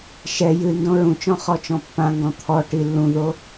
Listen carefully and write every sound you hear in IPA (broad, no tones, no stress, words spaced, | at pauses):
ʃɛ jɨ ndõɹũt͡ʃɔ̃ χɔt͡ʃɔ̃pːãŋɡɔ̃ t̪ʰɔ ʈilːũðo